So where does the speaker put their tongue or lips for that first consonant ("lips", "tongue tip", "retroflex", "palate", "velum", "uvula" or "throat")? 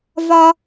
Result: lips